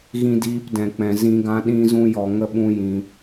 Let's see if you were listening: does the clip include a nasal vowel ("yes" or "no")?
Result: yes